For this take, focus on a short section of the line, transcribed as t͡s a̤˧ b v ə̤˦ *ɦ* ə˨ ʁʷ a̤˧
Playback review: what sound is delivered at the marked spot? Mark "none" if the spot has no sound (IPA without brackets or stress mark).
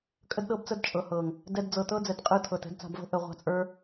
ʔ